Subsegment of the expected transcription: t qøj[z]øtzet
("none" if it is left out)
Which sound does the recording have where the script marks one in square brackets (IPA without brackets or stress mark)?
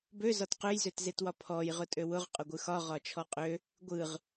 z